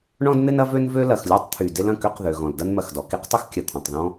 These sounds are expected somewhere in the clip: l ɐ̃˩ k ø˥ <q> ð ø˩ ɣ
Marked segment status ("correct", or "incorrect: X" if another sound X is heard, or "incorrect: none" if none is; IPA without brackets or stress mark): correct